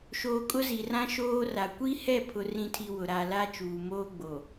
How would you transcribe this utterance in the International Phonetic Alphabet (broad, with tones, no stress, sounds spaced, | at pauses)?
ʃ oː˨ kʼ ʊ˦ z i˨ r ã˦ ʃ oː˦ r a˨ kʷ i˦ h ɛ˦˨ pʰ ʊ˨ r ĩ˦ tʰ i˦ w ʊ˨ ɾ a˨ l a˦ t͡ʃ uː˨ m oː˦ ɡ͡b o˨